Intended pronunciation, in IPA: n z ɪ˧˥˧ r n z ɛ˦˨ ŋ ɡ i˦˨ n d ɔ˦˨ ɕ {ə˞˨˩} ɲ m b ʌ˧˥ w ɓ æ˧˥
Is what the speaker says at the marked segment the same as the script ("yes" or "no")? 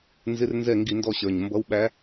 yes